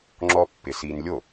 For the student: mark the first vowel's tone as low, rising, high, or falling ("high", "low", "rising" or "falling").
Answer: high